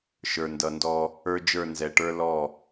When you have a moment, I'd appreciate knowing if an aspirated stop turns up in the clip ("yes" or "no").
no